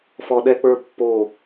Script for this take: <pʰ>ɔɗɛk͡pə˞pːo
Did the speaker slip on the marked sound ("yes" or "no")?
yes